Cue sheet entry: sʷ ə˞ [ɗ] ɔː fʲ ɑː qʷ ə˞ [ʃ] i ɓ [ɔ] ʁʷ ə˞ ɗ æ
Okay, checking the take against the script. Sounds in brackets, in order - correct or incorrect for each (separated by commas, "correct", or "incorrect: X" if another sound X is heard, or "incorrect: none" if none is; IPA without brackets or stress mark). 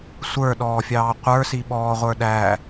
correct, incorrect: s, incorrect: ɔː